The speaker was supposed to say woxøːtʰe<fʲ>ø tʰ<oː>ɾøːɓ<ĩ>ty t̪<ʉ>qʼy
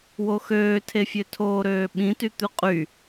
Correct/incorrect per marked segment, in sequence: correct, correct, correct, correct

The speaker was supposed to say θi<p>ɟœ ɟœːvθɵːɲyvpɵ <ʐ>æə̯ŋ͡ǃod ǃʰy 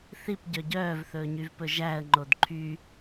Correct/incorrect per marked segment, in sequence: correct, incorrect: ʒ

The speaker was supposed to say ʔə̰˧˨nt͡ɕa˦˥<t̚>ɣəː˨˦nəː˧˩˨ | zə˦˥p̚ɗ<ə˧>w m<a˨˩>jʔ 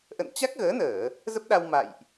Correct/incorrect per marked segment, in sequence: incorrect: k̚, incorrect: a˧, incorrect: a̰˧˨

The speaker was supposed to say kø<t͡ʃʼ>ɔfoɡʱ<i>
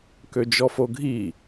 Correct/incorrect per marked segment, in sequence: incorrect: d͡ʒ, correct

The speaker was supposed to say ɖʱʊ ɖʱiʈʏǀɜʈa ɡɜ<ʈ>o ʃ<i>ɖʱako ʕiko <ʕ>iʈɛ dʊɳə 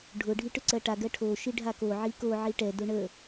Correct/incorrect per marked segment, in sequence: incorrect: ʈʰ, correct, correct

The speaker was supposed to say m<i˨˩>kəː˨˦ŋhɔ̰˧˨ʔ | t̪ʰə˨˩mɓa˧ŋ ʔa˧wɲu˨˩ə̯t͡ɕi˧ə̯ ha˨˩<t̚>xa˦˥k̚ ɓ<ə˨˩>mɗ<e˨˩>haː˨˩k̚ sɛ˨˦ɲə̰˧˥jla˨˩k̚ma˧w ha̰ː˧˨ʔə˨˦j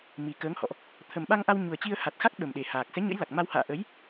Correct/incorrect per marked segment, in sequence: correct, correct, correct, correct

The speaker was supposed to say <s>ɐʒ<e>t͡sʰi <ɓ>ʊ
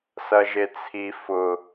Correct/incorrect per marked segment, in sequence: correct, correct, incorrect: f

